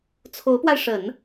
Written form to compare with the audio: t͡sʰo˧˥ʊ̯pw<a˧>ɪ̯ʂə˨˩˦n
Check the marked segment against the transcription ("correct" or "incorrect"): correct